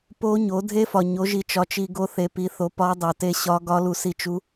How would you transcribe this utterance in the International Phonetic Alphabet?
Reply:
po˦˥ ɲo˨˦dʱe˦˥fɒ˨ɲo˨˦ ʒi˨t͡ʃɒ˨t͡ʃi˨ ɡo˨ θe˨pi˨˦θo˨˦ pɒ˦˥dˤo˨te˦˥ ɕɒ˦˥ɡɒ˦˥lu˨ si˨t͡ʃu˨˦

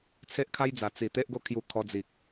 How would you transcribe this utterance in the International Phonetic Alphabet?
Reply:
t͡sʰe˦ʔkʰa˦jd͡za˨˩ t͡si˨˩ t̪e˦ʔɡo˦kʰju˧kʰɔ˧ d͡zi˨k̚

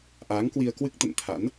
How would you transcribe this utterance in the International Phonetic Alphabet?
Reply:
ʔaː˨˦ŋkwi˧ə̯kwɨ˦˥k̚ t̪ə̰˧˨nt̪ʰa̰˧˥n

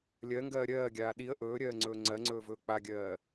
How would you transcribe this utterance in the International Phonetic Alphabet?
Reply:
lʲɜŋɡɜː ɾʲɜːɡʲaː ɗiə̯ ʔɵːɾʲɜːŋ͡ǀɵː ŋ͡ǀɜŋ͡ǀɵːvɵː k͡paɡʲɜː

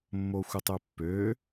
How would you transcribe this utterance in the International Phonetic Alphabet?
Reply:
mːoxʷɘtˤøpːø

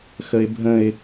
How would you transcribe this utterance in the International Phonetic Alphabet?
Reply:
xəɪ̯bʱə̃ɪ̯

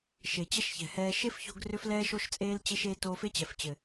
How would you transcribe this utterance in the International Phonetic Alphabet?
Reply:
ʃe˨t͡ɕɛ˦ʃçɛ̤˨hɛː˧ ʃe˦fço̤˧ɡ rʏ˦flɛː˦ʃo˦ʃt͡sʼeː˦l t͡ɕe˦ʃ e˦ toː˧fe˦t͡ɕɛ˨ft͡ɕɘ˨

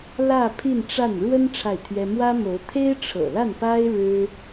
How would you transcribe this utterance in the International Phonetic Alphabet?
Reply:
lä˥˧ pʰi˥˧nʈ͡ʂa˥˩n ɻwə˥n ʈ͡ʂʰa˥˩ɪ̯t̪ʰɥɛ˥ mwä˥mo˧˥ʊ̯ t̪ʰe˥ɪ̯ʈ͡ʂʰɤ̰˨˩la˥˩npa˥ɪ̯ ɻɻ̩˥

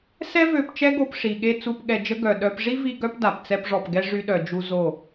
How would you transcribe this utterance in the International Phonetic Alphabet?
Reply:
sɛ˦vø˧p t͡ʃɛ˦ɡo˧pʂi˨ɠe˦˨ t͡su˦˨pɠɛ˧d͡ʒə˦ ɡœ˨ ɗœ˦p ʐi˦vi˧ ɡœ˦pda˨p t͡sɛ˧pʐɔ˨pɡɛ˧ ʐy˦ɗœ˧d͡ʒu˦ zo˦˨

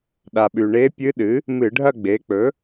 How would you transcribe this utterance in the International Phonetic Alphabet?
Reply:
ɗa˩ɓʉ˩ ɳe˧˥pʲɨ˧˥ɗɨ˩˥ | mɨ˧˩˧ɖʱɐ˥˧ɡ͡be˩˥ k͡pɵ˩˥

